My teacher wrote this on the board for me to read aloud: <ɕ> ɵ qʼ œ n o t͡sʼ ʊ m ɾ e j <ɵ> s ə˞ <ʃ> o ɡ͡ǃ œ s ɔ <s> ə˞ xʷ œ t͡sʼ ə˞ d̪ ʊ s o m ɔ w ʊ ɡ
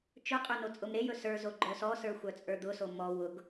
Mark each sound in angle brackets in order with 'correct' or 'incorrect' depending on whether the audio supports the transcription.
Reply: incorrect, correct, incorrect, correct

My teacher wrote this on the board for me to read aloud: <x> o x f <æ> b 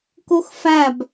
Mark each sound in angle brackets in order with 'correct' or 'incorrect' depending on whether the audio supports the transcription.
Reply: incorrect, correct

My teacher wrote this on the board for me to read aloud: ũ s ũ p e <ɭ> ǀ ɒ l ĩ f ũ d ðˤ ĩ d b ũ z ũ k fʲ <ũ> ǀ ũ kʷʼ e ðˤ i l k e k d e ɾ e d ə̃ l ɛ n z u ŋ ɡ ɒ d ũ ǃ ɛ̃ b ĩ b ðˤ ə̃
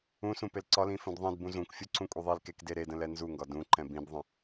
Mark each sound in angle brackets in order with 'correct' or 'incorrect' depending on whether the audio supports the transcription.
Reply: incorrect, incorrect

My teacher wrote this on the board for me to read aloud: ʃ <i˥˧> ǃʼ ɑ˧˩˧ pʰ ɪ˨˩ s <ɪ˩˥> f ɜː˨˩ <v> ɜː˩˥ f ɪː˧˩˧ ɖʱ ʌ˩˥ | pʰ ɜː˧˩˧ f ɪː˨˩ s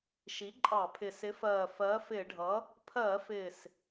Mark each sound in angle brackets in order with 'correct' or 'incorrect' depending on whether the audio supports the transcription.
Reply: incorrect, correct, incorrect

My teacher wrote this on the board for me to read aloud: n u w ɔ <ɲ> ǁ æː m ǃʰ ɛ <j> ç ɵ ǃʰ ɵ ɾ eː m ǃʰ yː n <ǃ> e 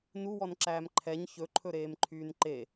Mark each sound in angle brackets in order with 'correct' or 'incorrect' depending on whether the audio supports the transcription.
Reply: incorrect, incorrect, correct

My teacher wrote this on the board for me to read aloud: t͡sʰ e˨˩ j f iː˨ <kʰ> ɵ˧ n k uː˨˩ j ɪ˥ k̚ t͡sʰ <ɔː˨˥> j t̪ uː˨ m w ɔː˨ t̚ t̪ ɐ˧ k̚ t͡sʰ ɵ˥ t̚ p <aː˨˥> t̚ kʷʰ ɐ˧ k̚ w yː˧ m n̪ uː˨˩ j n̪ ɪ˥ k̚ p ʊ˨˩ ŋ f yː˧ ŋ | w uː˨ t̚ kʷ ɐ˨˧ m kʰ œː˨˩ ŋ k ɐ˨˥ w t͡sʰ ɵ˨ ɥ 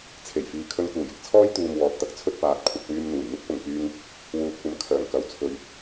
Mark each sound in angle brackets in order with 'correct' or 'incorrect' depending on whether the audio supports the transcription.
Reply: correct, incorrect, correct

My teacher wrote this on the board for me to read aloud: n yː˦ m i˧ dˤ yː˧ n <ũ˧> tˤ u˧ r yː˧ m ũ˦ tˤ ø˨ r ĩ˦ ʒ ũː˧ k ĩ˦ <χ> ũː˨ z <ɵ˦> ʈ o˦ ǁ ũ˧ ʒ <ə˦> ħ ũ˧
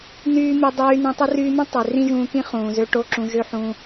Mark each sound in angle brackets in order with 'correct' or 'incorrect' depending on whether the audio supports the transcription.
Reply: correct, correct, incorrect, incorrect

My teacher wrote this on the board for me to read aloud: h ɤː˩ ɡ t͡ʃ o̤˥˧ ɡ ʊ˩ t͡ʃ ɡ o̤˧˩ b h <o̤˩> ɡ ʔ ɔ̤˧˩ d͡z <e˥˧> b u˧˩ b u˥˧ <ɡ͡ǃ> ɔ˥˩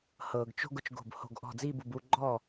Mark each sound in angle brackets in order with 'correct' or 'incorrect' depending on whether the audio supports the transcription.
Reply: incorrect, incorrect, correct

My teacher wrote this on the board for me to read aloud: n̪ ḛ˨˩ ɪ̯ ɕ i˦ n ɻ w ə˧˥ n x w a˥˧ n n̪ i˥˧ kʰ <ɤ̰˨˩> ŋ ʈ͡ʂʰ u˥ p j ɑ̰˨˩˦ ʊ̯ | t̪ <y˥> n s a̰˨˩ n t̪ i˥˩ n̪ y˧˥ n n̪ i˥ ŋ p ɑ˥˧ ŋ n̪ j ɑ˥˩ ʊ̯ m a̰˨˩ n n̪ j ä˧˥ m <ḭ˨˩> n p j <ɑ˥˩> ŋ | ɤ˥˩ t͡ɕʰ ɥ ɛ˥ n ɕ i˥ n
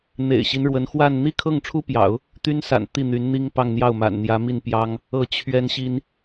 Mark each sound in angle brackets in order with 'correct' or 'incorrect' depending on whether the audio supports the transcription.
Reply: incorrect, correct, incorrect, incorrect

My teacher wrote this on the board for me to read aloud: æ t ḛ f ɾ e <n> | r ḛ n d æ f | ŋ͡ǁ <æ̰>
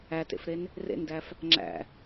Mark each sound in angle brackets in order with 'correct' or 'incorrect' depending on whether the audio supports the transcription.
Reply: correct, correct

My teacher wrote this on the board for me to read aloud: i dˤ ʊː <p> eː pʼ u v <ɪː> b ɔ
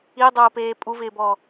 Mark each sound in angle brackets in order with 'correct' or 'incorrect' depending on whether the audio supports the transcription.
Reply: correct, correct

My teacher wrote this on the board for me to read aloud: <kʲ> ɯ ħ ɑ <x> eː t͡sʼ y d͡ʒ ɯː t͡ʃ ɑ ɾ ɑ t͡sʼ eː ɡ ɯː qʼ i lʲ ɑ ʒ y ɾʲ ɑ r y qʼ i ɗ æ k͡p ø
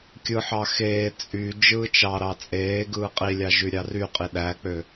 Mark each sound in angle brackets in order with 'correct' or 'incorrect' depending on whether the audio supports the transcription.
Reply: correct, correct

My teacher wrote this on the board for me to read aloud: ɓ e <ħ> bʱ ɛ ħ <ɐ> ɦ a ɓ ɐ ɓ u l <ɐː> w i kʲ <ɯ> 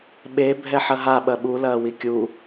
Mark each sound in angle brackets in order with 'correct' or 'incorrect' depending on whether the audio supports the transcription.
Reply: incorrect, correct, correct, incorrect

